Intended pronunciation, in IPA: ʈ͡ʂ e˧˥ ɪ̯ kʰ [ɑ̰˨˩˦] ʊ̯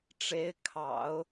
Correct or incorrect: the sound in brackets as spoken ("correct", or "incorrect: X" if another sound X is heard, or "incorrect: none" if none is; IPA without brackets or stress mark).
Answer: correct